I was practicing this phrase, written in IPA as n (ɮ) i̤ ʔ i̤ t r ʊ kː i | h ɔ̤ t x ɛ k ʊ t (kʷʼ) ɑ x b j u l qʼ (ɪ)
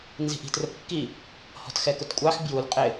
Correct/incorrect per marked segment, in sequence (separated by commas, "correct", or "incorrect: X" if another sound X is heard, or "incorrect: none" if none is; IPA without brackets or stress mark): incorrect: z, correct, correct